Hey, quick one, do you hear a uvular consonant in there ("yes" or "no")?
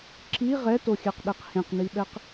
yes